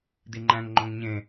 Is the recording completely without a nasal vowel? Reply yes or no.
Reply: no